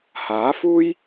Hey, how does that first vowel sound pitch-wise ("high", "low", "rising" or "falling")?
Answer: rising